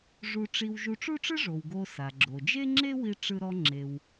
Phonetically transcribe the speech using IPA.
ʐ u˧ ʈ͡ʂ i˧ w ʒ u˧ ʈ͡ʂ u˥ ʈ͡ʂ ɯ˥ ʐ o˩ w ɡ o˧ s a˩ ɡ͡ǁ o˩ d͡ʒ e˥ ŋ͡ǁ e˥ w i˧ ʈ͡ʂ ɯ˧ ɾ ɔ˧ ŋ͡ǁ e˩ w

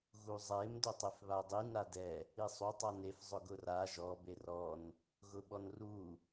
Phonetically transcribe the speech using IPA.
ɣ u zˤ e m d ʊ tˤ e f β a dˤ i n a d ɛ | i sˤ u tˤ a n e f zˤ ʊ ɡ ʊ r a ʒ ɔ b e r ɔ n | ɣ ʊ ɓ ɔ n r u

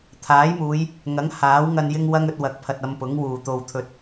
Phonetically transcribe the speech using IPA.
t̪ʰ aː˨˥ j m uː˨˧ j | ŋ ɐ˨˥ ŋ h aː˨˥ w ŋ ɐ˧ n j ɪ˥ ŋ w ɐ˥ ŋ ɵ˧ t̚ w ɐ˨˥ k̚ pʰ ɐ˨ t̚ ɐ˧ m p ʊ˨˥ ŋ w uː˨ t̪ o˧ w t̪ʰ ɵ˧ t̚

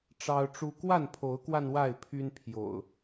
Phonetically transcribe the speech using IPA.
ʈ͡ʂ ɑ˦ ʊ̯ ʈ͡ʂ u˦ k w a˥˨ n pʰ o˨˦ ʊ̯ k w a˧ n w a˥˨ ɪ̯ pʰ y˦ n pʰ j o̰˨˩ ʊ̯

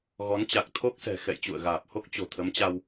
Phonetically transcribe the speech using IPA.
ɣ ɔ˨˦ n t͡ɕ a˨˩ k̚ t̪ʰ o˦˥ k̚ s ɛ̤˨˩ x ɛ̰˧˨ j t͡ɕ ṵ˧˨ ə̯ ɣ aː˨˩ p̚ h o˦˥ k̚ t͡ɕ o̤˨˩ t̪ʰ ə˨˦ m t͡ɕ a˧ w

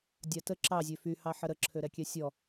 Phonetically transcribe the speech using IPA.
dʲ a t ə ǁ ɑ zʲ ø f y h ɑ ħ ə ɾ ə ǁʰ ø ɾ ɛ kʲ ɛ sʲ ɔ

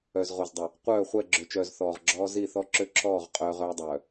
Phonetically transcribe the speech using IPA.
œ˨ z ʁ o˨ z dˤ ə˨ | qʷ œː˦˨ χʷ ɛ˦˨ ɡ͡ǁ ø˨ t͡ʃ œː˨ z θ ɔː˨ ʁ ɡ͡ǁ ɔː˦ z i˦˨ θ ɔ˦ ǁ ø˦ ǁʰ ɔː˦˨ ʁ qʼ œː˦ ʁ œː˦ dˤ œː˨

